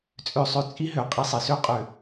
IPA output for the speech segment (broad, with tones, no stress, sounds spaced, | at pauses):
t͡sʼ ø˨ sˤ ø˨ t͡sʼ i˦ ɦ ø˨ qʼ i˦ sˤ ɛ˨ s ø˦ qʼ ø˨